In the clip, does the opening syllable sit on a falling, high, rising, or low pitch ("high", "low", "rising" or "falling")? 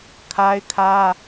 high